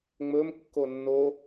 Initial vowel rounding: rounded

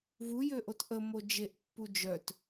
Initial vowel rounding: rounded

